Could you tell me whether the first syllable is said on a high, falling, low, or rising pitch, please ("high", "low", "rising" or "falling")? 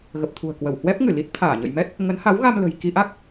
low